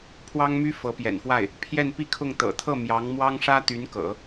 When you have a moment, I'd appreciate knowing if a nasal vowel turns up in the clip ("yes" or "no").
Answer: no